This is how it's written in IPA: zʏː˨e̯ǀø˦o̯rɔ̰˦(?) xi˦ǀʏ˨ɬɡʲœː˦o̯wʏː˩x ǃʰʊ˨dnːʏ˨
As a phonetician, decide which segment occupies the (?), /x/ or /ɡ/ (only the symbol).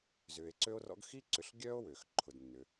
ɡ